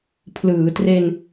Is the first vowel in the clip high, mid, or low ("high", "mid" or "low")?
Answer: high